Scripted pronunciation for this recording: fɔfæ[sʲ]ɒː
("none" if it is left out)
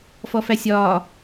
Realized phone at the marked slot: sʲ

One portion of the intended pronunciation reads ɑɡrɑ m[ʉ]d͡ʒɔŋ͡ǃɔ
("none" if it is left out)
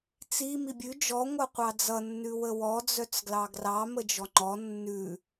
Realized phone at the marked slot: ə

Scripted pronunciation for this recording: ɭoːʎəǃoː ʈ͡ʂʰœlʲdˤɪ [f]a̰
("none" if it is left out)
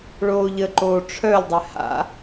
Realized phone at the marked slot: h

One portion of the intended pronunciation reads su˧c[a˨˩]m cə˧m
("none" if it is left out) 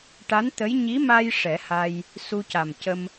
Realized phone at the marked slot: a˨˩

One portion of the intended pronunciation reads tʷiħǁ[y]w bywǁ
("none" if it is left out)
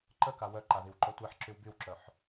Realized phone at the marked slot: y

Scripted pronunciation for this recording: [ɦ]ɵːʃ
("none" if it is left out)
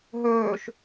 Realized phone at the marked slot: ɦ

